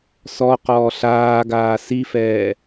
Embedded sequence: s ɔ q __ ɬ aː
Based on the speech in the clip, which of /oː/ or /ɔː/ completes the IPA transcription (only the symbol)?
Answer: ɔː